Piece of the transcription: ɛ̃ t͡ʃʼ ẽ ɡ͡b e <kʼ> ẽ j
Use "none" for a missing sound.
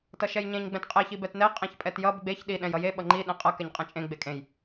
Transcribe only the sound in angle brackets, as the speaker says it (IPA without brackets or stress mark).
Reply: kʼ